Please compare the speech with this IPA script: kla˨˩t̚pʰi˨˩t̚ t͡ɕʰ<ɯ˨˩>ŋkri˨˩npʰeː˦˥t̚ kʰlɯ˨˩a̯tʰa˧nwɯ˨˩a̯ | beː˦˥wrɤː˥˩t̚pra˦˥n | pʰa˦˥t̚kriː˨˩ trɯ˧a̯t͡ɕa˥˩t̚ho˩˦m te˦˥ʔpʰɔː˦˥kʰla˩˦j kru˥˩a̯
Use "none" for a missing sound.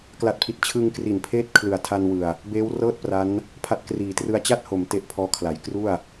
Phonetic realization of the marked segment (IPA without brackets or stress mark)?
ɯ˧